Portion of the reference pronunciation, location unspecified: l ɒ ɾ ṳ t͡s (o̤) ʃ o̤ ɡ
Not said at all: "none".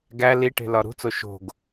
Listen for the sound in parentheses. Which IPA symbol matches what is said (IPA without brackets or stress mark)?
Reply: o